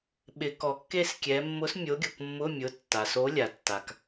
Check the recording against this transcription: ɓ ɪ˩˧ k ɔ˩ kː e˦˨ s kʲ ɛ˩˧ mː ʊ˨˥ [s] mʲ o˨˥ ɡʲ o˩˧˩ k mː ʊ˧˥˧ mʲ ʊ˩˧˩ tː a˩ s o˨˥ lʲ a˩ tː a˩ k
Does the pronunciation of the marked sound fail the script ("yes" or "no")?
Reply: no